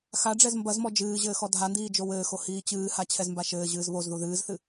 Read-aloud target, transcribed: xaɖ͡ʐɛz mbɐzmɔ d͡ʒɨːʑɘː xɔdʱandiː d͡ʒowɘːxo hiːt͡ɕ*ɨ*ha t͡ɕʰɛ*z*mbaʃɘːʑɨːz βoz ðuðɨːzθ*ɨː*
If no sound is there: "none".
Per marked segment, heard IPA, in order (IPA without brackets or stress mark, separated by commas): ɨː, z, ɨ